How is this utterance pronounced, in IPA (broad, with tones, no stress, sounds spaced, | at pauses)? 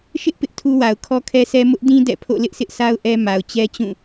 ʃ ɪ˦ ʔ p ɪ˦ ʔ tʰ u˦ w a˨ ʊ̯ kʰ ɔ˦ kʰ ɛ˦ s ɛ˦ m ʊ˦ ʔ d ĩ˦ d ɛ̰˦˨ pʰ o̰˦˨ l ɪ˦ ʔ s ɪ˦ ʔ s a˦ ʊ̯ ʔ ɛ˦ m a˨ ʊ̯ t͡ɕ ɛ˦ t͡ɕ ũ˦˨